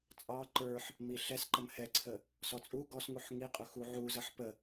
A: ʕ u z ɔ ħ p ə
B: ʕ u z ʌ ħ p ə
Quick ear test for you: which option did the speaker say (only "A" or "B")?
B